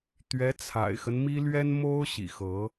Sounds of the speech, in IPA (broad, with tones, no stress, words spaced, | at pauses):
t̪ɥɛ˧˥t͡sʰa̰˨˩ɪ̯xə˦n mi˥lɥɛ˥n mo˥ʊ̯ ɕḭ˨˩xɤ˧˥